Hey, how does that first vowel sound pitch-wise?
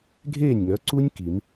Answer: falling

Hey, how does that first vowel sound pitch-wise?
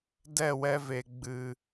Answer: falling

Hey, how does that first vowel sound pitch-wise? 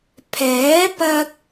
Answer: rising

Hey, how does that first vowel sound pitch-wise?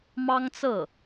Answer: high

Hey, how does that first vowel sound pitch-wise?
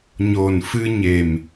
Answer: low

